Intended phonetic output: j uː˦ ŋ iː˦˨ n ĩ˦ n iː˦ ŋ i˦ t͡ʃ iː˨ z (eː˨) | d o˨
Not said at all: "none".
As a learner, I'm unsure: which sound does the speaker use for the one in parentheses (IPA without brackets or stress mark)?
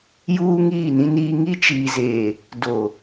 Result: eː˨